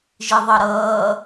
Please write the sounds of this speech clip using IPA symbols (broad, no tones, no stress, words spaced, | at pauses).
ʒiðˤʌɾʌː